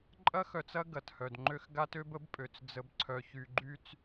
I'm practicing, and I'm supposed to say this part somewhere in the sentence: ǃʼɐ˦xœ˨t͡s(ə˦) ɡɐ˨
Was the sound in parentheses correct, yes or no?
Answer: no